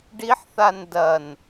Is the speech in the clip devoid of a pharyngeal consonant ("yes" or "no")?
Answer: no